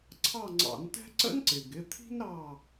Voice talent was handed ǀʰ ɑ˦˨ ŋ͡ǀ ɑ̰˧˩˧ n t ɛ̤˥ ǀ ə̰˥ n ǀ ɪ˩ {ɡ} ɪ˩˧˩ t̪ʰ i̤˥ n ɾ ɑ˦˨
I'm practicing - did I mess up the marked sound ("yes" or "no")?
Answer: no